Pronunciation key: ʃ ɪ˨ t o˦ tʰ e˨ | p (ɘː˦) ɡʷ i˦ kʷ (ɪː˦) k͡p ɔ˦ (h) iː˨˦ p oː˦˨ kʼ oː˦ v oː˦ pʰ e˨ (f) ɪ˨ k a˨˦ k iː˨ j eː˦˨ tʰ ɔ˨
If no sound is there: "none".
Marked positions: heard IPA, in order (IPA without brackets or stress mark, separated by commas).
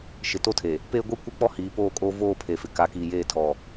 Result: eː˦, ɪ˦, h, f